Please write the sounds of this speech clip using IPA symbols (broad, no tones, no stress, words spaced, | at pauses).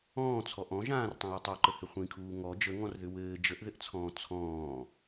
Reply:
ɔ̃ːt͡sʰɔ ʔɔ̃ ʒãːrtˤĩjɛ tˤuǃəhɘ χʷĩkʰuː ŋɔ d͡ʒəŋɔ̃rðʏ wɘː d͡ʒəʔðɘʔt͡sʰɔ̃ː t͡sʰɔ̃ː